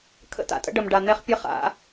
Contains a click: no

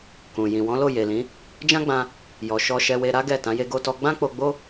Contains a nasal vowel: yes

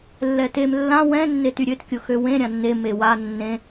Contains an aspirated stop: no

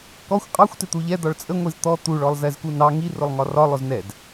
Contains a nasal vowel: no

